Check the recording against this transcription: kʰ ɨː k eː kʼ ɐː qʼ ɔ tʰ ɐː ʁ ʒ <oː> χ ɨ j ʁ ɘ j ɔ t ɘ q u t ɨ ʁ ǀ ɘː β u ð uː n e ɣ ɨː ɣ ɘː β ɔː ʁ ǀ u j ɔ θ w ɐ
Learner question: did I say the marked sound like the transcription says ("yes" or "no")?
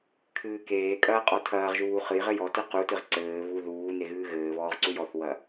no